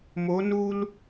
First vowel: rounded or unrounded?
rounded